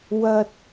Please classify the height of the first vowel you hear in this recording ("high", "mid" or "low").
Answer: low